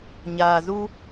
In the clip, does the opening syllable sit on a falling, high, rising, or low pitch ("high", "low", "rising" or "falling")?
low